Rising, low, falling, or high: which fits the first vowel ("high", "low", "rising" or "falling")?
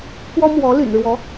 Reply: high